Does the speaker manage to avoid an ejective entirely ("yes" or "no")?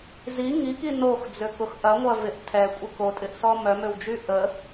no